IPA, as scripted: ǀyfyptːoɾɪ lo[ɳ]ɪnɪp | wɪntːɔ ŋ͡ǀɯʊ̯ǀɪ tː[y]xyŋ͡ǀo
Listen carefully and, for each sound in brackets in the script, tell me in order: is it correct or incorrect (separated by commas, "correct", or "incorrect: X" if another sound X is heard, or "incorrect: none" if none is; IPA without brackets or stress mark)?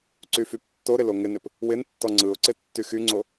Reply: incorrect: ŋ, correct